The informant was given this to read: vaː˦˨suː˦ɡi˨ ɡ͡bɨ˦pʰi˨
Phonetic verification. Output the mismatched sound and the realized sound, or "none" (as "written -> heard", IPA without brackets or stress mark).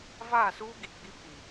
ɨ˦ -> i˦